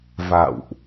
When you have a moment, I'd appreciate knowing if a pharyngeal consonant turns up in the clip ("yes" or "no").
no